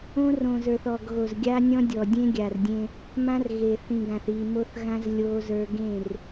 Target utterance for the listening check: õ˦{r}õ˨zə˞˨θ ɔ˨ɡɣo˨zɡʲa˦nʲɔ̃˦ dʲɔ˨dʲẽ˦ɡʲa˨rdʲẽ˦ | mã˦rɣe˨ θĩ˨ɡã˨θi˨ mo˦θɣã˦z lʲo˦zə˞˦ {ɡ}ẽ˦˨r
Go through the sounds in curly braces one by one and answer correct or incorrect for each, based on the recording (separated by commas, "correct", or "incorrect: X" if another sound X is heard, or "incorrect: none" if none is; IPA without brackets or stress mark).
correct, correct